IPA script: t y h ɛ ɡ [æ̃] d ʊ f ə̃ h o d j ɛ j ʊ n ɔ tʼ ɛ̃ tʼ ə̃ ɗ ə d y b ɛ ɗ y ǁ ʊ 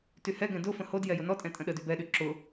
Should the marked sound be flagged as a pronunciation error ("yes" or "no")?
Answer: yes